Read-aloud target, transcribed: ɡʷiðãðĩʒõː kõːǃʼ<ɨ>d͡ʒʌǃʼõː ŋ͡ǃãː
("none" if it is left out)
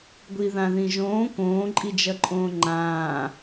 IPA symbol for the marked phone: i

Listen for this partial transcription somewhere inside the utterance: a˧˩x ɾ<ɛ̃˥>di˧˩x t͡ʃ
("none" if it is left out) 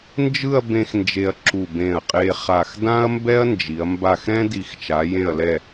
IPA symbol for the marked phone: ɛ̃˥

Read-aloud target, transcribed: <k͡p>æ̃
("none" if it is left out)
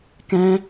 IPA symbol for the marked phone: k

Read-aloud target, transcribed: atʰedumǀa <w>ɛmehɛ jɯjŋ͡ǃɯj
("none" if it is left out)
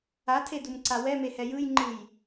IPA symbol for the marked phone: w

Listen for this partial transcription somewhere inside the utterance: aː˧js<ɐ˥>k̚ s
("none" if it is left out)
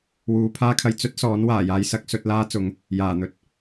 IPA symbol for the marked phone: ɐ˥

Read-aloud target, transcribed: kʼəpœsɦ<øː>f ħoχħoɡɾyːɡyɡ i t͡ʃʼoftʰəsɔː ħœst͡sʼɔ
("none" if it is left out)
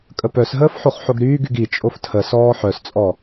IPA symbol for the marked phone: əː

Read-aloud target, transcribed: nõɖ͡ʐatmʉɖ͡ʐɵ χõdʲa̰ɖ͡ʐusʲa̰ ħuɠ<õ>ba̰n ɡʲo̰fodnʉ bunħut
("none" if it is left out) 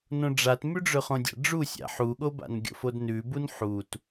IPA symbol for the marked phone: o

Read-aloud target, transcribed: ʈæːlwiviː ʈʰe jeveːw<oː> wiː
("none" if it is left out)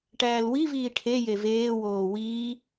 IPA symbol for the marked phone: oː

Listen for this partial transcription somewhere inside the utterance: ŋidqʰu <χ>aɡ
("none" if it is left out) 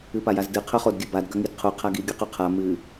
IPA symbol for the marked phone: qʰ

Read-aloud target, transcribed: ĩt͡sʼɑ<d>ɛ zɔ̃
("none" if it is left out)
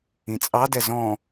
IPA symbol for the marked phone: d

